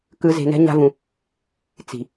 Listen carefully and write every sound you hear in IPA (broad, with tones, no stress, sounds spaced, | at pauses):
k ɯ˧ z e̤˧ n ɛ̤˦ ɲ a̤˦ v ũ˧ | t͡s i̤˨